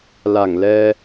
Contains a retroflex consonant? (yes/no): no